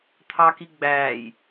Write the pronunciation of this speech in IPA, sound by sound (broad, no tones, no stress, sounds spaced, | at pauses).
t̪ʰ ɑ k i ɡ͡b æː j